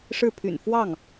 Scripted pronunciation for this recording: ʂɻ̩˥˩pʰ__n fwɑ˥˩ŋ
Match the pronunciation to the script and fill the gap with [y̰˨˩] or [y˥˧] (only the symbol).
y̰˨˩